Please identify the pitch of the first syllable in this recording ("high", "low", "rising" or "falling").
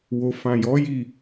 low